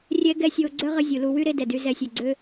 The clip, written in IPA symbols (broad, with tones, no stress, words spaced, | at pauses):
rʲɛ˦ɡɛ˦sʲo˧ ɡ͡ǀœ˦ ʁə˦zʲu˨lu˧ wy˦ɾe˧ dɛ˨dy˧zɛ˧sʲø˨ ɡ͡ǀø˧